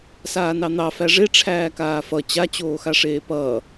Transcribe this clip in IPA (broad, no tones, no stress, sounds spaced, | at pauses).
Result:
s aː n ɑ n̪ ɑ f æ ʐ e ʈ͡ʂʰ æː k aː f ʌ t͡ɕ a t͡ɕ oː x a ʂ eː p ʌː